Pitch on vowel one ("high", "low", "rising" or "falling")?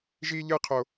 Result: high